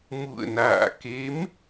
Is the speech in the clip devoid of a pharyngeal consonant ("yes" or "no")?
yes